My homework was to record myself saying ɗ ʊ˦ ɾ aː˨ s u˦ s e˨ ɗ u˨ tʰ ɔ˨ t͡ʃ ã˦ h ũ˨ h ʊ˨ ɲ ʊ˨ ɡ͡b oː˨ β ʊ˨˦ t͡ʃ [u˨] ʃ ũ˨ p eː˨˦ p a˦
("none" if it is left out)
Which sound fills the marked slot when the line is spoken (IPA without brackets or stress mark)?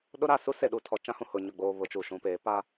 u˨